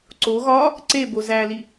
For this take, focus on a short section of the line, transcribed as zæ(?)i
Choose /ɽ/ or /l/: l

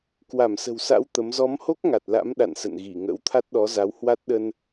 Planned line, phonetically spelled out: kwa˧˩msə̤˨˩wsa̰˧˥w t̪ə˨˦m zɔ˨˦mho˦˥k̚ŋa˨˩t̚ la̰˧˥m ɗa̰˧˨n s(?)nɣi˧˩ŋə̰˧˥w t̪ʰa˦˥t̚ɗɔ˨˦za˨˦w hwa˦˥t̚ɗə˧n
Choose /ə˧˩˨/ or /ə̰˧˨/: ə̰˧˨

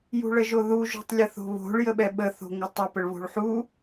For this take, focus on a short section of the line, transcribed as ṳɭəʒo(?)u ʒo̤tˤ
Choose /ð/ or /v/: ð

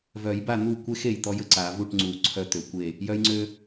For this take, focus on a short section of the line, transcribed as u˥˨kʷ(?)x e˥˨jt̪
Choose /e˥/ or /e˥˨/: e˥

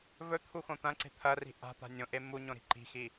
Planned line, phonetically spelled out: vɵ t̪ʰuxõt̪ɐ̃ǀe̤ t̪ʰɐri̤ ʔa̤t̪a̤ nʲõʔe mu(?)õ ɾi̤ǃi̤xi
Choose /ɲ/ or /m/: ɲ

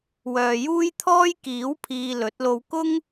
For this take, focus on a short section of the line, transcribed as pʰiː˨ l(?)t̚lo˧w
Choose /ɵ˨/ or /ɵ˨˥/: ɵ˨˥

